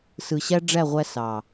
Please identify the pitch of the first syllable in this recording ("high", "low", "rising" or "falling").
low